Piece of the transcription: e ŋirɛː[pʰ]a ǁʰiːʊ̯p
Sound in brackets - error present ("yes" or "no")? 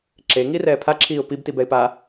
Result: no